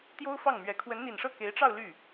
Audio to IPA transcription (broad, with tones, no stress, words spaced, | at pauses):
t̪jo˥ʊ̯fɑ˥˩ŋmɥɛ˧˥ kʰwə˧˥nn̪i˨˩nʂɤ˥˩ ke˧˥ɪ̯ʈ͡ʂɑ˥˧ʊ̯ ly˥˩